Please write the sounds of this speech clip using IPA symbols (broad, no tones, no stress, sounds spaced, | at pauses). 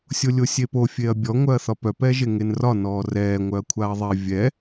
sʲ o lʲ o sʲ e p o fʲ e ɐ̯ bʲ ɔ ŋʷ œ ɐ̯ θ ɒ p œ p ɛ ʒ e ŋ e n r ɒ n ɔː r ɛː ŋʷ œ ɐ̯ kʷʰ a ɐ̯ ðˤ ɛ vʲ ɛ